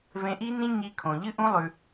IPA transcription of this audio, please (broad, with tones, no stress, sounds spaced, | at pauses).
v ẽ˧ ʔ i˦ n ĩ˦ ɲ i˧ kʰ õ˨ ʎ ɨ˦ ʔ ũ˦ lˠ ʉ˧